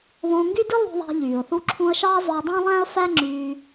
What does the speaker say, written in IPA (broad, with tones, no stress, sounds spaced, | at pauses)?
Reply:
β õː˧ ŋ ɡ y˥ d i˥ lˠ ṳ˧ ðˤ æ̤˧ ʎ yː˩ ʊ̯ θ u˥ ǁʰ ũ˥ ə̯ ʃ ɑ˥ zˤ ø˧ dˤ õ˥ lˠ æ̃˥ ə̯ f æ˥ ŋ͡ǁ yː˧